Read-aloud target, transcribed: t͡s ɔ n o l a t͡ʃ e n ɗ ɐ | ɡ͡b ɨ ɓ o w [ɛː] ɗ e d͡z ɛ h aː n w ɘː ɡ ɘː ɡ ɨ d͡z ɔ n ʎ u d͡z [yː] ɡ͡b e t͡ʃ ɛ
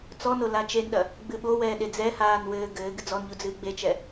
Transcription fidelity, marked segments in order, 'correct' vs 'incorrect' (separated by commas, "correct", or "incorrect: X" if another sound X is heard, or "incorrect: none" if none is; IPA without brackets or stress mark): correct, incorrect: ɨː